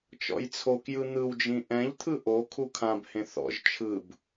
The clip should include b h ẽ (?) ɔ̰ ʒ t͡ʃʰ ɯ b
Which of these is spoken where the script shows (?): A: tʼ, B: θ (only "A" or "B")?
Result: B